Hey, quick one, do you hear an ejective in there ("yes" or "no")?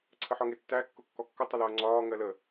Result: no